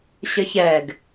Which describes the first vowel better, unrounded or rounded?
unrounded